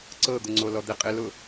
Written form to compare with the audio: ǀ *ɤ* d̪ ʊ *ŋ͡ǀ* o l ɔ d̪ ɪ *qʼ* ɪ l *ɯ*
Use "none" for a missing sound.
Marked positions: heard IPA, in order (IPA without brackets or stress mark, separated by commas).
ɤ, ŋ͡ǀ, qʼ, ʊ